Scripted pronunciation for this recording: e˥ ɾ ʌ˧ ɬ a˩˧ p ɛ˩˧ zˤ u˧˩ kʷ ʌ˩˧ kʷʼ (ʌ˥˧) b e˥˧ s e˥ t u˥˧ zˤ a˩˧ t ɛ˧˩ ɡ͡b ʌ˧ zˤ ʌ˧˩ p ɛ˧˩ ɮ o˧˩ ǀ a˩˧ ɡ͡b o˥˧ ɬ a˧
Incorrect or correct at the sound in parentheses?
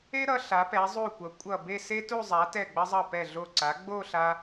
incorrect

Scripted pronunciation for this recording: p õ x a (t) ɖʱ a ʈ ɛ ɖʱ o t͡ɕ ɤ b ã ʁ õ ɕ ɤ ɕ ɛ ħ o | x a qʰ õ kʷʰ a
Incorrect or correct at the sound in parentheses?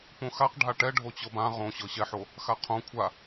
incorrect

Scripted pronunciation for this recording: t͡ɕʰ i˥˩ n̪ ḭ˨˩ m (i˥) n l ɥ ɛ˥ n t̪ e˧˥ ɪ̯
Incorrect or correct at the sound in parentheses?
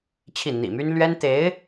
incorrect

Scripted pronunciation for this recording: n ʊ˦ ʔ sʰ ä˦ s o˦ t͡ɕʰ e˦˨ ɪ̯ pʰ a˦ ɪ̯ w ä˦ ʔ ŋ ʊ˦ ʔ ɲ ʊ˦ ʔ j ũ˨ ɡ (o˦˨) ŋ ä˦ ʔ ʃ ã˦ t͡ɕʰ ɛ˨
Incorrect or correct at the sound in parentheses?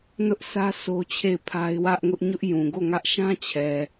correct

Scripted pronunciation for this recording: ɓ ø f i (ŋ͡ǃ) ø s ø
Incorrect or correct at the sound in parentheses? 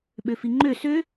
correct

